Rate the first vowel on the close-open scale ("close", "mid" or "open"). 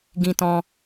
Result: close